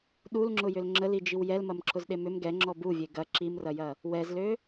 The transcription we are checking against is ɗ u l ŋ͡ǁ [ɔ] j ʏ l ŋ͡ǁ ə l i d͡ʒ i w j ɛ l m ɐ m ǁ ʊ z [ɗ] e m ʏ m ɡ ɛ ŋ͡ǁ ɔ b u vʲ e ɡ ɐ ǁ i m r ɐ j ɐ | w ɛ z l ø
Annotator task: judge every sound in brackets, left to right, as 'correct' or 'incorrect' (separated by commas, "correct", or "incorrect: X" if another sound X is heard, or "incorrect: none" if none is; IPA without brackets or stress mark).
incorrect: ʊ, correct